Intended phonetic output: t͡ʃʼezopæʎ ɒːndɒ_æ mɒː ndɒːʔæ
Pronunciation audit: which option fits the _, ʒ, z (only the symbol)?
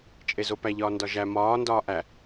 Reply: ʒ